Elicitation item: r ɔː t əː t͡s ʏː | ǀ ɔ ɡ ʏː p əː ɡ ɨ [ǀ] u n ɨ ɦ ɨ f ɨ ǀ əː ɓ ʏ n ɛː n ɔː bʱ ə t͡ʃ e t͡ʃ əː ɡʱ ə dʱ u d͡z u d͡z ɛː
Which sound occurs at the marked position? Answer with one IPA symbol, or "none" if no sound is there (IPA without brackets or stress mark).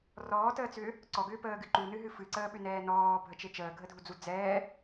ǃ